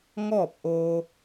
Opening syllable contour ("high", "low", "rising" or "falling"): falling